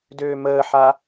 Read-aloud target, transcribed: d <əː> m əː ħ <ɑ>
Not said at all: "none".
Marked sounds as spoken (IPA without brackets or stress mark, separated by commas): øː, a